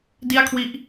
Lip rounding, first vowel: unrounded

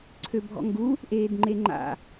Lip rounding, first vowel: rounded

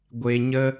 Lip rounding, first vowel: unrounded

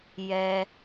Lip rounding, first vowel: unrounded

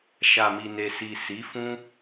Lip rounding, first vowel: unrounded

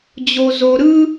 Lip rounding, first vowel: rounded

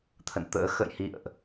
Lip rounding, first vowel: unrounded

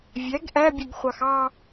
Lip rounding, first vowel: unrounded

